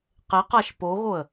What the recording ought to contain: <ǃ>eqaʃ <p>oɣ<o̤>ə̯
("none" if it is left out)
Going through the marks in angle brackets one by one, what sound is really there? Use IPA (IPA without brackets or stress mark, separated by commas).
q, p, o